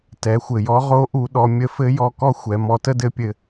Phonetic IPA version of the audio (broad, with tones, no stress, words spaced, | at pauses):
tɛ˩˧xʷɘ˩jɔ˧˥ ʁo˧˥ ʔu˧ ɗɔ˧ mʲə˧˥fɘ˧˥jɔ˧ kɔ˥xʷɛ˩˧ mɔ˧tə˥dɘ˧˥pʲɘ˧